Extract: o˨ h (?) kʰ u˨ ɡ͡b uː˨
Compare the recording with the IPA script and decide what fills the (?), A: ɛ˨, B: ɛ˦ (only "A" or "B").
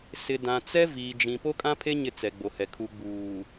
A